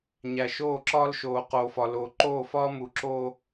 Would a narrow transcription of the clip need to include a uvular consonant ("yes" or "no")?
yes